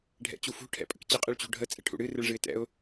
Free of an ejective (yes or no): no